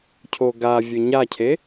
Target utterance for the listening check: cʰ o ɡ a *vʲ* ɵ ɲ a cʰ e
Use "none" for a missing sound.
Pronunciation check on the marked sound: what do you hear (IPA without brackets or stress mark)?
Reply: vʲ